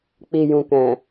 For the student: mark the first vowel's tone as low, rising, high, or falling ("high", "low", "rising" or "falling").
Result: low